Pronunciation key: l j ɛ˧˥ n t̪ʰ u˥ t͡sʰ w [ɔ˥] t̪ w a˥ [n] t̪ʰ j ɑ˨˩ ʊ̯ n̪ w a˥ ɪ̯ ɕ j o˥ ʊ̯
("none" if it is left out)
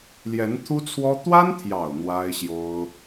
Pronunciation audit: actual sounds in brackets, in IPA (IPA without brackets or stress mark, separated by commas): ɔ˥, n